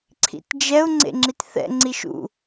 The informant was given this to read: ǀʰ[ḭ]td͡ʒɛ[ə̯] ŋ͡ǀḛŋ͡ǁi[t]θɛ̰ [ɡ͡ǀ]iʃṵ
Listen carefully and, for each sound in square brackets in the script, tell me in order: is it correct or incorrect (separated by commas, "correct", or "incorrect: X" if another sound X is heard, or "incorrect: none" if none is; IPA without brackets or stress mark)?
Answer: correct, incorrect: ʊ̯, correct, incorrect: ŋ͡ǀ